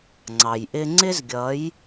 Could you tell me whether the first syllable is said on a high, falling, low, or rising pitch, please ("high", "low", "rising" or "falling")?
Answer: low